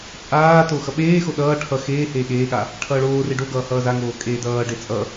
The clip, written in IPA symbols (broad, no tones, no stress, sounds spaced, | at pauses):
t͡sʼ aː t o x ʌ ɓ eː x o ɗ ʌː ʈʰ ʌ x eː h eː ɠ eː ɠ a | ʈʰ ʌː ɭ oː r e ɖ o ɡ ʌː h ʌː z a ŋ oː kʼ eː d ʌː ɖ e t͡sʼ ʌ